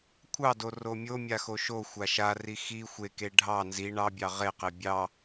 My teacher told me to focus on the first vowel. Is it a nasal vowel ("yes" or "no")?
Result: no